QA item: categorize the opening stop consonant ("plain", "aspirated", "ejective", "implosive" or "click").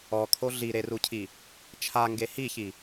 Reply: aspirated